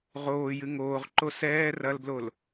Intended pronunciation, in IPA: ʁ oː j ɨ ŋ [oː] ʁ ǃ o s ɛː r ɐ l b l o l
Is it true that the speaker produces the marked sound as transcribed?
yes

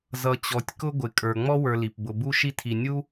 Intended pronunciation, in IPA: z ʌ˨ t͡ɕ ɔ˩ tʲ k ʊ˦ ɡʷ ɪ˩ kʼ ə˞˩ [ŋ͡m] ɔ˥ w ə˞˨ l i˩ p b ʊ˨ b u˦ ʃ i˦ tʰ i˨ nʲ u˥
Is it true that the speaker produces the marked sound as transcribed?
yes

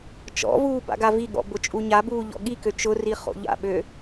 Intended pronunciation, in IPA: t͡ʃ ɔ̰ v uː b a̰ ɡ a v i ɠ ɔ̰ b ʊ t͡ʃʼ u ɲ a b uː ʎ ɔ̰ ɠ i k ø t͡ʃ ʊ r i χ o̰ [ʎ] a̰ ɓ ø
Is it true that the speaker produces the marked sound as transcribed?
yes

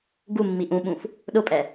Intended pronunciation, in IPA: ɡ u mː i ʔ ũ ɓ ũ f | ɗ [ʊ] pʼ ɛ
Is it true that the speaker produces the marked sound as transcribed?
yes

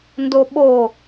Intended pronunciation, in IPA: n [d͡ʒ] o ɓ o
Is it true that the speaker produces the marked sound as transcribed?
no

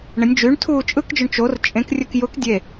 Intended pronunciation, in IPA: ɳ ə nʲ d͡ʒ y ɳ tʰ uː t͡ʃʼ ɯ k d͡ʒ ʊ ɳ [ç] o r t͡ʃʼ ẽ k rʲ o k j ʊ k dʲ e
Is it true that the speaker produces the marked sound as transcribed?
no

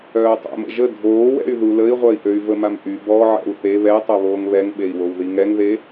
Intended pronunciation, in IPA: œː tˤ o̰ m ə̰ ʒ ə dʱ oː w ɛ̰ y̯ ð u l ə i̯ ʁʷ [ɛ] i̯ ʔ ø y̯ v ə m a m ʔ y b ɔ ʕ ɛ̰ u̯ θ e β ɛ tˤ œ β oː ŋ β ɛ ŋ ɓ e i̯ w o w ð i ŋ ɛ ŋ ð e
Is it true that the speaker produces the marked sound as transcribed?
no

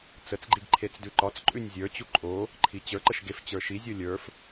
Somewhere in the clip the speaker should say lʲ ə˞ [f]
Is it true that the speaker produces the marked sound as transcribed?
yes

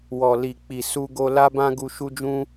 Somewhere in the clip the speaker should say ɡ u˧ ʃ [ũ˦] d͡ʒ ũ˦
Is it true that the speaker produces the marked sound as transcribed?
no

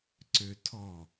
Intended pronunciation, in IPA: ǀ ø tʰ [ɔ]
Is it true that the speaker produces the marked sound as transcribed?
yes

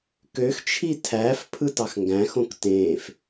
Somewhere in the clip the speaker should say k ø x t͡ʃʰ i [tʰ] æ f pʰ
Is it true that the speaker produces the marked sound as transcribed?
yes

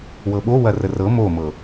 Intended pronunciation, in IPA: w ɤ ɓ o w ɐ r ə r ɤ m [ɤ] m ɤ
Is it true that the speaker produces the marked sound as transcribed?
no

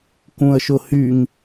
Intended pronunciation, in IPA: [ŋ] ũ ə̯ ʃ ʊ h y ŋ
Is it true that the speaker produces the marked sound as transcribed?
no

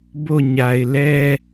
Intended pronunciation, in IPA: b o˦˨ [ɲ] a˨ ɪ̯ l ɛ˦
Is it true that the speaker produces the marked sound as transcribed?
yes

